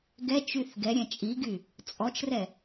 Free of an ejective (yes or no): no